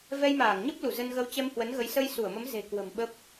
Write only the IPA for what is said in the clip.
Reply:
v ɛ˧ j m aː˧˩ ŋ ɲ ə˦˥ p̚ l u˧˩ z ə˧ n ɣ ə˧ w t͡ɕ ɛ˧ m h w ə˨˦ n ɣ ə˨˦ j s ə˧ j s u˧˩ ə̯ m ə˨˦ m z e̤˨˩ k w ə̤˨˩ m ɓ ə˦˥ p̚

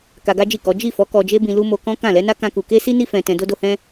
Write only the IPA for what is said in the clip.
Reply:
k a˧ ɡ a˦ d͡ʒ i˦˨ k ɔ˨˦ d͡ʒ i˦˨ f ɔ˨˦ k ɔ˧ d͡ʒ e˦ b ĩ˧ l u˦ m o˧ k ɔ̃˦ k ã˦˨ l ɛ˨˦ n a˦ k ã˦ k u˧ k e˦ s i˦ n i˦ f ɛ̃˧ t ɛ̃˧ d o˦ d o˧ h ɛ̃˦

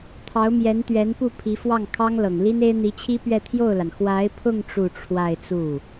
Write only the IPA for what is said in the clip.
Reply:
t̪ʰ ɑ˧˥ ʊ̯ m j ɛ˧˥ n t̪ ɥ ɛ˧˥ n p u˥˩ pʰ i˧˥ f w ɑ˥˩ ŋ kʰ ɑ˥ ŋ l ɤ˨˩ ŋ l i˥ n e˥ ɪ̯ n̪ i˧˥ t͡ɕʰ i˥ p ɥ ɛ˥˧ t̪ʰ j o˥˩ ʊ̯ l a˩ n x w a˧˥ ɪ̯ pʰ ʊ˥˧ ŋ ʈ͡ʂ u˥˧ ʈ͡ʂʰ w a˥˧ ɪ̯ t͡s u˥˩

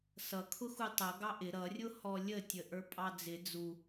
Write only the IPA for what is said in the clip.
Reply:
s ʌ kʰ ʊ x u tˤ ʌ ɡ ɑ ʔ ɪ ɾ ʌ rʲ ʊ h ɔ lʲ ə tʲ ə ʔ ə˞ pʼ ɑ d͡z ɪ d͡z u

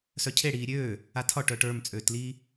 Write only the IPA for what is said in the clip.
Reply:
s œ cʰ e ɽ iː ɾʲ øː | a tʰ ɒ ʈ œː ʈ ə˞ m t͡sʼ øː t l iː

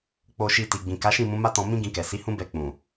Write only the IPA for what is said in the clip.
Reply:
k͡p o˨ ʃ i˨ t i˨ ɡ͡b ĩ˨ k a˨˦ ʃ ĩ˦˨ m ũ˨˦ m a˦ t ɔ̃˧ m ĩ˦ ɡ ĩ˧ k ɛ˨ s i˨˦ h ũ˦ b ɛ˧ k͡p ũ˨

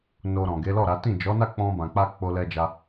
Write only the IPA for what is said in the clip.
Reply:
n o˨ ɾ ɔ̃˨ ɡ e˨˦ l ɔ˦˨ ɾ a˨˦ t ĩ˦˨ d͡ʒ ɔ˨˦ n a˦˨ k͡p ɔ̃˧ b ã˨ k͡p a˧ k͡p o˧ l ɛ˧ d͡ʒ a˧

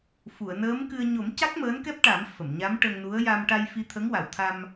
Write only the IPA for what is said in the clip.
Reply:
f u˨˩˨ ə̯ n əː˧˥ m k ɨ˧ ə̯ ɲ o˨˩˦ m c a˦˥ k̚ m əː˧˥ n k ɛ˦˥ p̚ ʈ a˨˩˦ m f ə˨˩˨ m ɲ a˧˥ m ʈ ə˧ ŋ n u˧˥ ə̯ j a˧ m ʈ a˧ j f i˧ t̪ʰ ə˧˥ ŋ w a˨˩ w t̪ʰ a˧ m

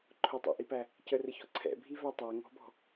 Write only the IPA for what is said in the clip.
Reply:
ǃʰ ʊ tˤ ɑ̰ ʔ i p æ | c ə r ə ç ɔ̤ ǀʰ ɛ̰ bʱ i v æ tˤ æ ŋ ɔ̤ b ɔ̤

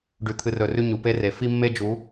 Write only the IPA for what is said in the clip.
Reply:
ɖ ʉ˨ t̪ʰ ɨ˨ r ɵ˨ r ʉ˧ ɲ u˨ p e˦ r e˨ f i˧ mː e˦ d͡ʒ u˨˦

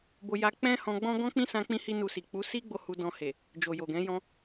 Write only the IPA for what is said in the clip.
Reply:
b o˧ j a˧ k͡p ɛ̃˦ h ɔ̃˧ ɡ͡b ɔ̃˦ ɡ ɔ̃˦ k͡p ĩ˦ s ã˧ k͡p ĩ˦ h i˦ n u˧ s i˨ k͡p u˨˦ s i˦ ɡ͡b o˧ h u˧ d ɔ̃˧ h e˨ | d͡ʒ o˨ j o˨ ɡ ɛ̃˨˦ j ɔ̃˧

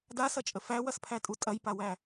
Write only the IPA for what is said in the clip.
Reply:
d a s ɐ t͡ʃʼ ə f æ w ɐ s pʰ æ tʼ u tʼ ɐ j p a w æ

